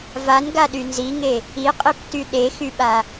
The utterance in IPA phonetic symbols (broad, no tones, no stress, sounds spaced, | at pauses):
v a n ɡ a ɗ y n z i ŋ e | i qʼ i p t y ɗ e x y ɓ a